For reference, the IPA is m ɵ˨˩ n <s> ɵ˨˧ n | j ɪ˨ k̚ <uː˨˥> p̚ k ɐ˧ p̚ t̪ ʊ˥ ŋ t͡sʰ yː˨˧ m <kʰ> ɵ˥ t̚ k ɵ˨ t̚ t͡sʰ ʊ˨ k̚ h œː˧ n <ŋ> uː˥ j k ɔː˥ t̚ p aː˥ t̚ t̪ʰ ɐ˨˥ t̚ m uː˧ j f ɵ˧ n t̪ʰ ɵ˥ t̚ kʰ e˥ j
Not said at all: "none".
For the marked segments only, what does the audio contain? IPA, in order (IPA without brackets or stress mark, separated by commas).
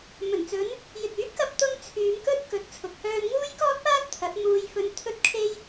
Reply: t͡s, yː˨˥, k, ŋ